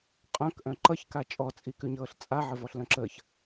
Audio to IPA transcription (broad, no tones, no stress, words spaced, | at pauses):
qʼœ̃kʔœ̃ ǃʌçka t͡ʃʼɔt͡sʼikʉɲɤːɬ t͡sʼaʕəvɔɬlœ̃ ǁəç